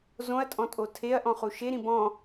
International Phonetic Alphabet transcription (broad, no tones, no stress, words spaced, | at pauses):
zõɐ̯tʼɔ̃tʼo tʰeɐ̯ʔɔ̃χu ʃeɾĩ bɔ̃